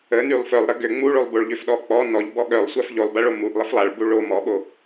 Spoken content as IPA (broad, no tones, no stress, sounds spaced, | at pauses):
ə n y lˠ f œ lˠ ɾ ə ɡ ø ŋ͡m u ɭ o lˠ b o ɭ ʎ ø f ɗ ɔ k͡p ɔ n ɔ ʎ b ɔ ɠ œ lˠ sʷ a f ʎ o lˠ b a ɭ o m u ʔ lˠ ə f lˠ a ɭ b u ɭ o m ɔ ɓ o